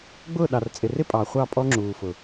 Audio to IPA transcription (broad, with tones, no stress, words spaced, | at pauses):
ɡ͡bʊː˦˨ ɗɑ˨rt͡sʼɪ˨rɪ˦ pʼɑ˨χʷɑ˦˨ pʼɔ˦ŋ͡ǁuː˨fʊ˨